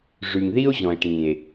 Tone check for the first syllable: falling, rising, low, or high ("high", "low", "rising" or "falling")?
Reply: low